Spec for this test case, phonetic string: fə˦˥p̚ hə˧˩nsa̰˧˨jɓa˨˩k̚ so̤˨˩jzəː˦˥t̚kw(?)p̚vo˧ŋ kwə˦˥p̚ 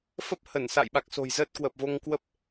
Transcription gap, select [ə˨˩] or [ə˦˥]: ə˨˩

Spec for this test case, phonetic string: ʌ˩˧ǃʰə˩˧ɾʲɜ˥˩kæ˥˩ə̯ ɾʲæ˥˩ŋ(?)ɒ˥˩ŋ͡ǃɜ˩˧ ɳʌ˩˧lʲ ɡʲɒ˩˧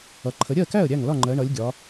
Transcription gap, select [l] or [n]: l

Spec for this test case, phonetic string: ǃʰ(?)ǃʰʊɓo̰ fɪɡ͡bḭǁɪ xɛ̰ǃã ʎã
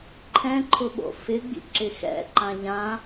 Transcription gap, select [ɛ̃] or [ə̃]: ɛ̃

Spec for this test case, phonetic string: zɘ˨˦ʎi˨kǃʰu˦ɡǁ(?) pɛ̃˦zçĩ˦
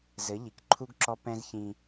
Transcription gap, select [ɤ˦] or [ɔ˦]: ɔ˦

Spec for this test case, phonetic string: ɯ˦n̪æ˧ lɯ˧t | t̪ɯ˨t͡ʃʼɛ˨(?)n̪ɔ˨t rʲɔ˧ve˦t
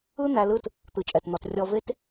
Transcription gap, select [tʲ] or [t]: t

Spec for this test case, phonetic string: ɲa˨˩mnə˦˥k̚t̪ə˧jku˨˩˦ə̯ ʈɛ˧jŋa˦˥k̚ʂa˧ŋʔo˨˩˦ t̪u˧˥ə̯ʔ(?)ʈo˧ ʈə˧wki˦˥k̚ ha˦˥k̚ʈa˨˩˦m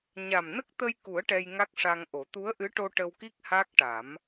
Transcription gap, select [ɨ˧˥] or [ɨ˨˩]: ɨ˧˥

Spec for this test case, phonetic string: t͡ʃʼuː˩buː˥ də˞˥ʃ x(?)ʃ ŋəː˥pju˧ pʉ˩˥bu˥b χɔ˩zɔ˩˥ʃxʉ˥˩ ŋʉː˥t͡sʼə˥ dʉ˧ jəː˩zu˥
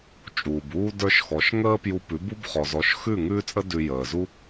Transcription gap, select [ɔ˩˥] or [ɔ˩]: ɔ˩˥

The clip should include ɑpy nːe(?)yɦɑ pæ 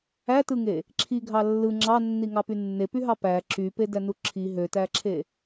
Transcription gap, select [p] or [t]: p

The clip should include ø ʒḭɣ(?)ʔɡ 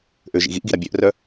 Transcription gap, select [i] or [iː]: i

